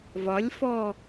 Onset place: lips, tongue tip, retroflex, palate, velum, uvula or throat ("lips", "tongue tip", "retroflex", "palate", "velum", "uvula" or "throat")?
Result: lips